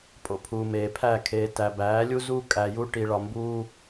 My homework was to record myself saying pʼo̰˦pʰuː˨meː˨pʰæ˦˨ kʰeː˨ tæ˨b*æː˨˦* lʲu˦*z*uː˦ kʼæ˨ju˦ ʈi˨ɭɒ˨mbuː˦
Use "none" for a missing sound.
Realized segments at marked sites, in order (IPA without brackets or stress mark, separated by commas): æː˨˦, z